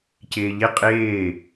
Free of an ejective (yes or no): no